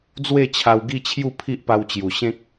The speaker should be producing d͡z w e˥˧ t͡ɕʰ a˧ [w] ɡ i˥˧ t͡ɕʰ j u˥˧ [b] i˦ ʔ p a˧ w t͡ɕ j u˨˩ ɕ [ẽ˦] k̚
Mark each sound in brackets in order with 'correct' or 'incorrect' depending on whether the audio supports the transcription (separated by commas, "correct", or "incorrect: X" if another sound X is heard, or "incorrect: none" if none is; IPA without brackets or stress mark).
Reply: correct, incorrect: pʰ, correct